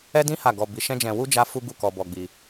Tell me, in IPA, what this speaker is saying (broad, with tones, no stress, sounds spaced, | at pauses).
ɛ˦ d ĩ˦ h a˦˨ ɡ ɔ˧ b i˧ ʃ ɛ̃˦ d͡ʒ ɛ̃˧ w u˦ d͡ʒ a˦ f u˦ ɡ u˦˨ k ɔ˧ b ɔ˧ ɡ͡b i˧